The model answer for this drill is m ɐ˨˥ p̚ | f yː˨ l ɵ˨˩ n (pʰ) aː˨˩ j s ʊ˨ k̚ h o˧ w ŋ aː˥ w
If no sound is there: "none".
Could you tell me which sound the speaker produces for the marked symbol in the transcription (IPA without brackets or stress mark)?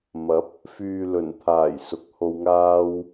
t̪ʰ